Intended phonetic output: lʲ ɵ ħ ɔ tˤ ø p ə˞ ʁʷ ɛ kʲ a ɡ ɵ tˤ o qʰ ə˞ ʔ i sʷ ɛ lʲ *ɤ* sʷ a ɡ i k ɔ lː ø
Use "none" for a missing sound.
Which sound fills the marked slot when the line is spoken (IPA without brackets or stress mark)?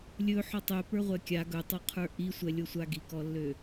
o